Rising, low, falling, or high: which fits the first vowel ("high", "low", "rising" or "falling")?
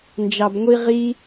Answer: low